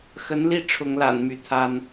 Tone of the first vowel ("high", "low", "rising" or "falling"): rising